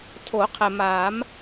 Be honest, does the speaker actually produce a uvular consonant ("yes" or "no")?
yes